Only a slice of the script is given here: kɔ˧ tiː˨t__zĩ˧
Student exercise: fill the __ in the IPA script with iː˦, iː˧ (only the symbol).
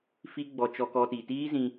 iː˦